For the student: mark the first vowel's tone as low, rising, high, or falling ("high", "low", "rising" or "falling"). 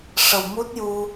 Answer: low